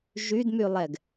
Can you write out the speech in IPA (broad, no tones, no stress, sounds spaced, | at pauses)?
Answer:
ʒ y d m y lˠ ɛ ɡ